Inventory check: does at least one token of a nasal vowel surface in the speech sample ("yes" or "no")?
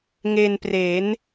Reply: no